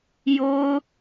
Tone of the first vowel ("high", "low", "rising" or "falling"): high